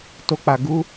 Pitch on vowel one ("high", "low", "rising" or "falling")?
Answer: high